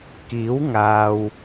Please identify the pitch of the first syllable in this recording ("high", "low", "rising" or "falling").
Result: rising